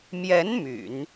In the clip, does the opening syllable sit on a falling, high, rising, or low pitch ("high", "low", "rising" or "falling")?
rising